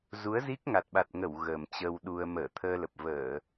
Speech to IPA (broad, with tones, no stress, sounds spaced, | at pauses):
z u˨˦ ə̯ z i˦˥ k̚ ŋ a˨˩ t̚ ɓ a˨˩ t̚ ŋ ə˧˩ w ɣ əː˨˩ m t͡ɕ ə˧ w ɗ u˧ ə̯ m əː˧˩ t̪ʰ əː˧ l ə˨˩ p̚ v əː˧˩˨